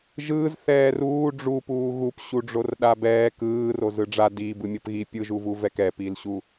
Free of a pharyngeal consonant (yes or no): yes